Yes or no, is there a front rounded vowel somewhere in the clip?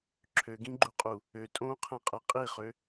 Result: yes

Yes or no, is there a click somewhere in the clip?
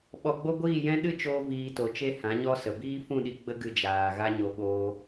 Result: no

